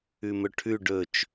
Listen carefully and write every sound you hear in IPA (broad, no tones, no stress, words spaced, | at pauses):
ʉmɵʈʰʉ ɖɵt͡ʃ